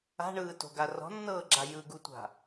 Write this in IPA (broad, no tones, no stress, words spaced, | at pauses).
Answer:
a̤ɳɯːto̤ɡa rɔ̤nːɤːɡ͡ǁa jɯɡutʷa̤